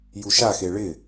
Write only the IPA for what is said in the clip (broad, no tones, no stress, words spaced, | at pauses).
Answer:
juʃaxe ɭɪ